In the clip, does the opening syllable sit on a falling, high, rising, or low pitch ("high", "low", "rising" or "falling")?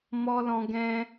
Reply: high